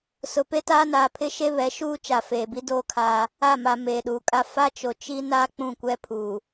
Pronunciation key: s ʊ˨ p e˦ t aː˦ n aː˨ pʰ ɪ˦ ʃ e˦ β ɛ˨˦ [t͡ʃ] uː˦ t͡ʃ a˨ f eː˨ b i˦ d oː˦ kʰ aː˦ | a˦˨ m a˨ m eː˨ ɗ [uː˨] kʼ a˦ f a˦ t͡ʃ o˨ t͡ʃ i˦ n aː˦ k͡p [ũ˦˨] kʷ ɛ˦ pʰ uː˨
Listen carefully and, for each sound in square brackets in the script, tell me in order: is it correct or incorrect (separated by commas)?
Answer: incorrect, correct, correct